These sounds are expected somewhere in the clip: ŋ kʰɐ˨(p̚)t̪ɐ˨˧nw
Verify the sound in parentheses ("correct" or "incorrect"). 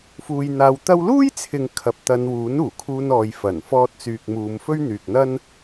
correct